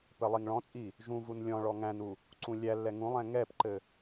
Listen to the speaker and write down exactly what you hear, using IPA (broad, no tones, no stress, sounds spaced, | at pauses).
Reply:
p ɘ lˠ i ŋ ɭ ɔ̃ t͡sʼ i | ʒ ũ v u n lʲ ɔ̃ ɭ ɔ ŋ æ̃ n u | ǀ ũ lʲ æ lː ɛ ŋ ũ lˠ ɛ̃ ŋ ɛ p ǃ ɘ